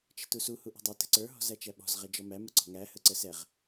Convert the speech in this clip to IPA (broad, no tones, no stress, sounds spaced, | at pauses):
t͡ʃ ə̤ t u s u h u ʔ ṳ dˤ ɪ t ə̤ ǀ ə˞ ɦ ɔ̤ z æ t͡ʃ æ ɓ ɔ̤ z ʁ ɛ d͡ʒ ɔ m æ m ə ǀ ɔ̤ ŋ æ h ə ǀ ə s ɛ ʁ